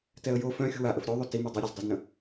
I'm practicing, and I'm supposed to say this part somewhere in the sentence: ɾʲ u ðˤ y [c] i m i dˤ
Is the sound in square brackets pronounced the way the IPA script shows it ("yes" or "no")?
no